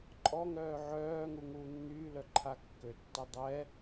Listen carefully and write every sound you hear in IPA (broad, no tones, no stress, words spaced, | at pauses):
ǃʼɔŋœː ʕœːŋu ŋuːnːyːlœǃʰa kːøtːɛ dˤɛ